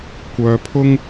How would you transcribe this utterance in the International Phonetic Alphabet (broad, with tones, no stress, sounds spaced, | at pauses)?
kʷ œː˧ pʰ ʊ˥ ŋ